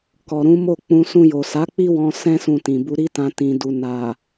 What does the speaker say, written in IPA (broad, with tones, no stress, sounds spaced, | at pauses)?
k ɔ˨ ɾ ũ˨˦ m o˦˨ k͡p ũ˧ s ũ˧ j o˨ s a˨˦ k͡p i˦ w ɔ̃˧ s ɛ̃˦ s ũ˧ t ĩ˨ b u˧ ɾ i˦ t ã˧ t ĩ˨ d u˨ n a˨